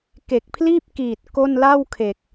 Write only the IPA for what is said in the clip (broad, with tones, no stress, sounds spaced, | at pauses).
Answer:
k e˨˩ k̚ pʰ l iː˥˩ p̚ k iː˨˩ t̚ k o˥˩ n l a˥˩ w kʰ e˨˩ k̚